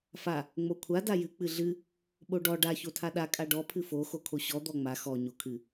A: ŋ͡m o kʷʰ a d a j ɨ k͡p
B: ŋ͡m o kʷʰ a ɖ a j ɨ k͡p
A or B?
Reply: A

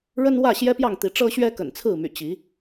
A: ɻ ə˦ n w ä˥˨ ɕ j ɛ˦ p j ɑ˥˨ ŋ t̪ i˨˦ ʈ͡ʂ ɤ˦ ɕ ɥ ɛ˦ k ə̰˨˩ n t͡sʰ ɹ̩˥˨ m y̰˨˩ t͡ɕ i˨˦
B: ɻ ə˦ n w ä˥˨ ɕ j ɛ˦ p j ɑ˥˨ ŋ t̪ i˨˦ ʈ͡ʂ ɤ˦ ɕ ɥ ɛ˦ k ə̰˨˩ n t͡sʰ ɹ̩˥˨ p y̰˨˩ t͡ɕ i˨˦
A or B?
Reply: A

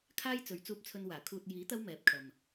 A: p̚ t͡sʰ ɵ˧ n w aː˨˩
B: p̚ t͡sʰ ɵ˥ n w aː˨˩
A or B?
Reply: A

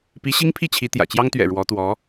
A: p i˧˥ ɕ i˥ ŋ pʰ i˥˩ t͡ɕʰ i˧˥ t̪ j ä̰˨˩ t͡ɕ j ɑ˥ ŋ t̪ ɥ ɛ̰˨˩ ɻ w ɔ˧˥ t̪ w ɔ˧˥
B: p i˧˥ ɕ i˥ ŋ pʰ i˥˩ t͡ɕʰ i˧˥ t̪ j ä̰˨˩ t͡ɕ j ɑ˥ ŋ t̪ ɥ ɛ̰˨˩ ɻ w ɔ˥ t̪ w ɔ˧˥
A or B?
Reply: A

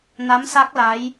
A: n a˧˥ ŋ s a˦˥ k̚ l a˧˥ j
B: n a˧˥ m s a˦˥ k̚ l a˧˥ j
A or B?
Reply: B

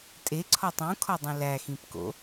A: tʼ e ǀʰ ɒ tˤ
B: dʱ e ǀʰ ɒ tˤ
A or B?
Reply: A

